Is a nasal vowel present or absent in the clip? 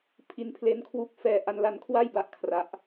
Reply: absent